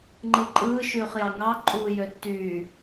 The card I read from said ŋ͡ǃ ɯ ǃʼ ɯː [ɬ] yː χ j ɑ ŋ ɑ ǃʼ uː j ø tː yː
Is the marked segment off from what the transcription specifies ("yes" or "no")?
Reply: yes